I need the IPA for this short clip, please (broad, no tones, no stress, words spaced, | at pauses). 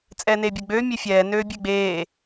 t͡sʼɛːneːbʲɛɡ͡bøː mʲefʲɛː nøːbʲeɡ͡beː